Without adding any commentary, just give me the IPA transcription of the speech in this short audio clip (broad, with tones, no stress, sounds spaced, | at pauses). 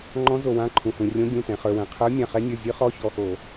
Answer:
ŋ͡ǃ ɔ̃˨˦ z o˩ w ã˩˧˩ ǃʰ ũ˩ h ũ˩ rʲ õ˨˦ ɡʲ ũ˩˧˩ t ɛ̃˩ χ ə˞˩ w ɛ̃˩ qʰ ə˞˨˦ mʲ ã˩˧˩ χ ɛ˨˦ nʲ ə˞˩˧˩ zʲ ɨ˨˦ χ ɔ˨˦ ç ɔ˩˧˩ x o˧˩˧